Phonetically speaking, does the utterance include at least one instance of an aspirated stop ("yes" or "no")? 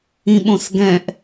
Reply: no